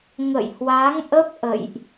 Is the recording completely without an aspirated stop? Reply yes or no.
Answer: yes